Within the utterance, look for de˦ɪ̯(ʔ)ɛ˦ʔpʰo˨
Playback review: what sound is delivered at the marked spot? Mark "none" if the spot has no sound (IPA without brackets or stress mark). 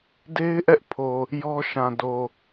ʔ